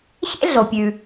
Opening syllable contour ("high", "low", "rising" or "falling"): high